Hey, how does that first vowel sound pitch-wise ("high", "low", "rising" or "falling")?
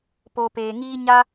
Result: low